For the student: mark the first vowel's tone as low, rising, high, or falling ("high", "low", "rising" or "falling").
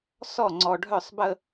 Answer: falling